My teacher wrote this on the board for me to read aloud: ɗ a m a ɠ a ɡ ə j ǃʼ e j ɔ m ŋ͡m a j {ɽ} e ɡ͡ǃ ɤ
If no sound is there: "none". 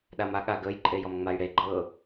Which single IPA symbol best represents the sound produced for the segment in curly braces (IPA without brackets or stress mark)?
ɽ